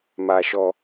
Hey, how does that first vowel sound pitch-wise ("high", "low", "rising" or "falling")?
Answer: low